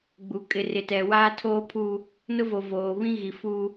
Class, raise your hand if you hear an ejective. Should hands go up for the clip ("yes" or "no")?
yes